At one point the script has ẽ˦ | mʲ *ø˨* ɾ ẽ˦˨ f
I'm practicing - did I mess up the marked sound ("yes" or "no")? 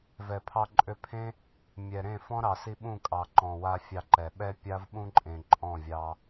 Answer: yes